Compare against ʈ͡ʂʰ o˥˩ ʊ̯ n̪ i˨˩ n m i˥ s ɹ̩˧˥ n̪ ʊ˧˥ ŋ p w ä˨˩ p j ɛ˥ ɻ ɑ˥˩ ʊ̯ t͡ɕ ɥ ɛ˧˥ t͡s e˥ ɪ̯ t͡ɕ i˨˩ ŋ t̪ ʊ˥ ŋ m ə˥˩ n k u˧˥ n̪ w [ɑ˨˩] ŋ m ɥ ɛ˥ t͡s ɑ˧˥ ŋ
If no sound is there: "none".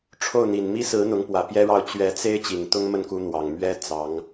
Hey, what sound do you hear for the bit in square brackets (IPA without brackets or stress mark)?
ɑ˨˩